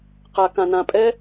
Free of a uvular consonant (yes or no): no